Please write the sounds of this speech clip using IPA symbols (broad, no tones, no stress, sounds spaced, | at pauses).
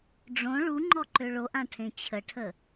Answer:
ɖ͡ʐ õ ɭ u ŋ͡ǃ ɔ ǃ ø ɭ o ʔ ã ʈʰ ẽ t͡ɕʰ ə ʈʰ ə